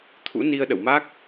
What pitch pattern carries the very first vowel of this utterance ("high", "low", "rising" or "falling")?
rising